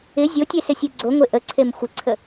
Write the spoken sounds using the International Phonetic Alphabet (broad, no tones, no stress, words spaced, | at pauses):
ɪ zʲotʲe sɪsʲeɡ͡ǀoŋʷe ʔəǀʰem xʷɪǀʰə